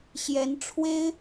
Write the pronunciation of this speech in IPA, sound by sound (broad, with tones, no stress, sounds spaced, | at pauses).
ɕ j ɛ˧˥ n ʈ͡ʂʰ w e˥ ɪ̯